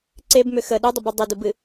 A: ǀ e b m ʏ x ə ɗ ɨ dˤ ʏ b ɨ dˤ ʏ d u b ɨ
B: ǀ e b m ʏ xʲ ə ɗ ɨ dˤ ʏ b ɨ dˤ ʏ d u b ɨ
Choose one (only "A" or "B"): A